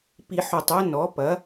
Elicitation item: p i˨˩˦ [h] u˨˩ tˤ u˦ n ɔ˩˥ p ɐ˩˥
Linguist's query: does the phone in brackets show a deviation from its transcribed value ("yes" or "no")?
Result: yes